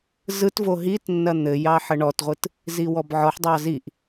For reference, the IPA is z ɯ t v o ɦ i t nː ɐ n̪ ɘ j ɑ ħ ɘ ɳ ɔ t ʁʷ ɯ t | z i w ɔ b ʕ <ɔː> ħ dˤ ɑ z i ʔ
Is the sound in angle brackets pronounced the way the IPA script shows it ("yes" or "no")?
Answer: no